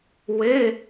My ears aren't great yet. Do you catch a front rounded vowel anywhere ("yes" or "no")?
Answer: no